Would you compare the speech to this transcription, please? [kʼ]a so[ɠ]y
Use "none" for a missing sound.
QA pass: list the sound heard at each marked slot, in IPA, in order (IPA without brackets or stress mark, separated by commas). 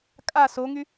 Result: kʼ, ŋ